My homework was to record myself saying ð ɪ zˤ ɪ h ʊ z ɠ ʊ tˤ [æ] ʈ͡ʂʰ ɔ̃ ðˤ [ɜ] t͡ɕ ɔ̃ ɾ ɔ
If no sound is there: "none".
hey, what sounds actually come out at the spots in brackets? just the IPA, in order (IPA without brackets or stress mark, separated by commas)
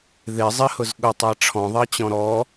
æ, ɜ